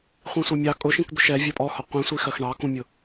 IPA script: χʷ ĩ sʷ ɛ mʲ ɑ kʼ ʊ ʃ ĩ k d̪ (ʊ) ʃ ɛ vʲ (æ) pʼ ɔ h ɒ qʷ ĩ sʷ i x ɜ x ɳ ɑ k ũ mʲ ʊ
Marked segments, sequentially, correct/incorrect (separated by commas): correct, incorrect